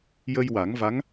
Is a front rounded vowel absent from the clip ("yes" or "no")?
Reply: yes